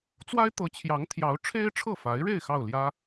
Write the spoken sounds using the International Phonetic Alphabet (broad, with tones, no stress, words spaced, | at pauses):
t͡swa˥ɪ̯t̪ɤ˧˥t͡ɕʰjɑ˧˥ŋ t̪ʰjɑ˧˥ʊ̯ ʈ͡ʂʰe˥ɪ̯ʈ͡ʂʰɤ˥˩fa˧˥ɪ̯ɻe˥˧ɪ̯ xɑ˥˩ʊ̯ljä˥